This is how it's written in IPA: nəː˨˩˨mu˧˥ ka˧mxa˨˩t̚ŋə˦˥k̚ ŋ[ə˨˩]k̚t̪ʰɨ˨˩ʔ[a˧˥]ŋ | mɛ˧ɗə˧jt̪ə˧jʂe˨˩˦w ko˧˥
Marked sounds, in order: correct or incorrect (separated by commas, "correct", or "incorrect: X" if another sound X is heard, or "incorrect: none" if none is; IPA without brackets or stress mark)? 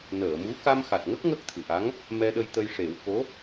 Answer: incorrect: ə˦˥, correct